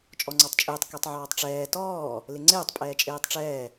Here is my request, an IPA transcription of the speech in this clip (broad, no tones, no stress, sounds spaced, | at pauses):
t͡ʃʼ ɔ ŋ͡ǀ ɔ tˤ t͡ʃʼ ɪː tˤ k ɛ tˤ ʕ ɔː tˤ ʈ͡ʂ ɛː t ɔː | l ɪ ŋ͡ǀ ɪː tˤ pʼ ɛː t͡ʃʼ eː tˤ ʈ͡ʂ ɛː